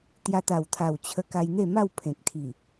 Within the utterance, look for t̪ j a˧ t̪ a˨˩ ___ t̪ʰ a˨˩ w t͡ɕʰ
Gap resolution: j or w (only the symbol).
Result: w